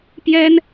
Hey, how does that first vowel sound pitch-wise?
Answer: high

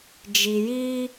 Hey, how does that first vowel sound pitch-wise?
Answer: low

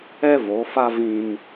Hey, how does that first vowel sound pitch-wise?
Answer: high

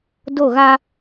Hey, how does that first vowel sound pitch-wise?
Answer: falling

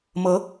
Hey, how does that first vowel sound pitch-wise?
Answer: rising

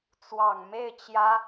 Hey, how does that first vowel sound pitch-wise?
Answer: low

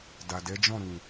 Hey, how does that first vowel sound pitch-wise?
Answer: low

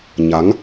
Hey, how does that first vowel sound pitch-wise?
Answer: rising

